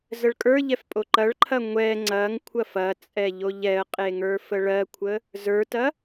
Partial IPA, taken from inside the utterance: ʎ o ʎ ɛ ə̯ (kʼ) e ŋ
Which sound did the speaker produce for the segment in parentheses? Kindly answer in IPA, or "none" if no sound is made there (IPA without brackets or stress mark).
qʼ